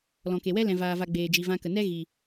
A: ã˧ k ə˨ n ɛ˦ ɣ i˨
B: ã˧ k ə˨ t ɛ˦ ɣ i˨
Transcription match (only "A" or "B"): A